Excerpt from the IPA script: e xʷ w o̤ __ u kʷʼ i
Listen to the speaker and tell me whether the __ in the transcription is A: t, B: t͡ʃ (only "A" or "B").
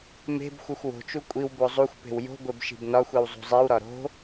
B